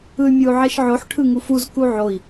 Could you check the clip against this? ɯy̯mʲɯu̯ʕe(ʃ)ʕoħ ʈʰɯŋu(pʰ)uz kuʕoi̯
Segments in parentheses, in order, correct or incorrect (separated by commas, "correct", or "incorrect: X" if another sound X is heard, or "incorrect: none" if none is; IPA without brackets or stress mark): correct, incorrect: f